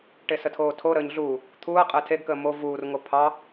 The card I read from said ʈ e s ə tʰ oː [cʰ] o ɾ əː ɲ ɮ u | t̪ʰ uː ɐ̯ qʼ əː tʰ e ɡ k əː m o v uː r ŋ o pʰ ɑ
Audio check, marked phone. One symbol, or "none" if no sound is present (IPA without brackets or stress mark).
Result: tʰ